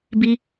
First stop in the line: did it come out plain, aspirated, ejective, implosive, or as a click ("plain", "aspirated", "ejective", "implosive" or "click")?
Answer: plain